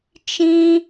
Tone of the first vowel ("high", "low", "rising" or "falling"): high